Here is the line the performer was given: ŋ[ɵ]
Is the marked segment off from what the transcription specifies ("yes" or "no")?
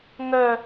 yes